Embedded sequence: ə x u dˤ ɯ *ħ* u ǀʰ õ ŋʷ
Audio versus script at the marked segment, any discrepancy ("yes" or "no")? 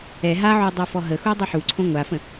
no